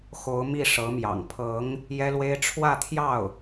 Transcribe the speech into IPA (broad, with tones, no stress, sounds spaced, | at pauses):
x o˧˥ ʊ̯ m i˥˩ ʂ ɤ˧˥ m j ɑ̰˨˩ ŋ pʰ ɤ˧˥ ŋ | j ɛ˥ l w e˥ ɪ̯ ʈ͡ʂʰ w ä˥˧ t̪ʰ j ɑ˥˩ ʊ̯